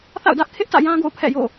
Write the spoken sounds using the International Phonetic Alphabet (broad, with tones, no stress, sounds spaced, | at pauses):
θ a̰˦˨ ʊ̯ d ä˦ ʔ kʰ ɪ˦ ʔ t ä̰˦˨ j ã˦ ɡ o̰˦˨ ʊ̯ pʰ ɛ̰˦˨ j o̰˦˨